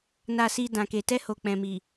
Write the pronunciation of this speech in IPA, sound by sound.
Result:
n a˨ s i˨ d ã˨ k e˨ t ɛ˧ h o˨ k͡p ɛ̃˨ m i˨

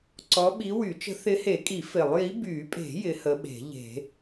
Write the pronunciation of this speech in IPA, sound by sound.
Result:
ǀ ɔ˨˦ ɓ i˨˦ w y˨˩˦ t͡ʃ ə̤˨˦ θ ɪ˨˦ h e˨˩˦ kʼ i˨˩˦ f ɪ˨˩˦ lˠ j i˨˦ b y˨˩˦ pʼ e̤˨˩˦ j ɪ˨˦ h ə˨˦ ɓ e̤˨˩˦ ʎ e̤˨˩˦

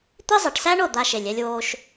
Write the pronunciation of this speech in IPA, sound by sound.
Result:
t̪ i˦ zˤ e˨ ʈ s æ˦ ɳ o˦˨ d̪ a˧ ʃ e˨ lʲ ɛ˧ lʲ w oː˧ ʃ

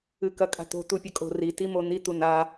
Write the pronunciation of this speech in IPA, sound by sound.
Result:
ɨ k ɐ kʼ a̤ t̪ o̤ t̪ u pʲ ɐ kʼ o̤ r i t i m o n̪ i t̪ u n a

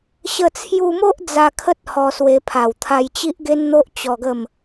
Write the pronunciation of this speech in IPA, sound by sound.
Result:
ɕ ə˧ t͡sʰ j u˧ m o˦ ʔ d͡z a˧ kʰ ə˦ t̚ h ɔ˧ s w e˧ pʰ a˨˩ w t̪ʰ a˧ j t͡ɕ i˦ ʔ ɡ e˦ n n̪ o˦ ʔ t͡ɕ ɔ˧ ɡ ə˥˧ m

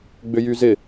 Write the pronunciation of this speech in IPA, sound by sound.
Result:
ɡ͡b ʏ j y z ɪ

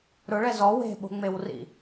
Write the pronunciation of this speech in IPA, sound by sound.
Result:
ɾ ʊ ɭ ɛ z ɔ w e̤ ɓ o̤ ŋ͡m e w r ḭ

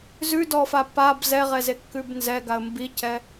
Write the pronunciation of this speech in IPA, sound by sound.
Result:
z ʉ d ɔ f a p a b z ɛ ʁ ɛ z e kː ʉ b n z ɛ ɡ a ə̯ m b i c ɛ

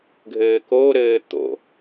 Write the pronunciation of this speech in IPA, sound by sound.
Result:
ɡʱ ɘː k o ɾ ɘː t̪ o̰

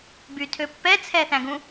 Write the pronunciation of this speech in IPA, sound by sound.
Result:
b y tʰ ø pː ɛ t͡sʰ ɛ θ æ̃ ɡ ũ

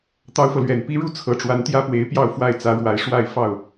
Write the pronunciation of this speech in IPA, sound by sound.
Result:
t̪ ɑ˥ ʊ̯ f ɤ˨ l ɥ ɛ˨˩ n p i˥ ɻ u˥ t͡sʰ ɤ˧˥ ʈ͡ʂ w a˧˥ n t̪ j ä˥ p w e˧˥ ɪ̯ p j ɑ˥˧ ʊ̯ f w a˥˩ ɪ̯ t͡s ä˧˥ ɻ w a˧˥ ɪ̯ ʂ w a˥˧ ɪ̯ f ɑ˥˩ ʊ̯

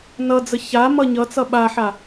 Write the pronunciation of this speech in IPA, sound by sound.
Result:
n ʌ d͡z ə ç a m ʌ ɲ ʌ t͡s ʌ ɓ a ħ a

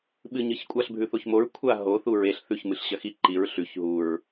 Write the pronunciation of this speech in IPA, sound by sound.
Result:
ɓ ɨ ɲ ɨ ç kʷʼ a ɬ bʱ ʉ θ o ç m o ɹ kʷʰ a ɦ o θ u ɹ e ɬ θ ʉ ç m ɨ ɬ ɕ ɐ x i ǃ i ɹ ɬ ʉ ç ɦ u ɹ

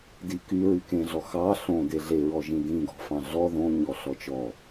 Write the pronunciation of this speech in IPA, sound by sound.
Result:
d i k y ɹ y k ẽ ɮ ɔ x ɑ ɬ õ d e ɮ e ɹ ɔ ʒ ĩ d ĩ ɡ ɔ̤ f ɑ̃ ɮ ɔ ð õ ɲ ɔ ɬ ɔ t͡ʃ ɔ

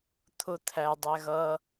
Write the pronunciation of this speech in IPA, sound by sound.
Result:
t̪ʰ ʊ t̪ʰ æ dˤ æ ɣ ʌ

